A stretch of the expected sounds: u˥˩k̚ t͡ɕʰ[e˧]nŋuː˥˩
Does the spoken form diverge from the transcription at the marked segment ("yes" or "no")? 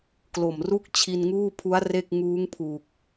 yes